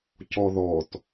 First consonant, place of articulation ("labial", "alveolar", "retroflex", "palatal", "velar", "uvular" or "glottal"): palatal